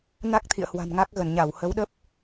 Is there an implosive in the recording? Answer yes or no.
yes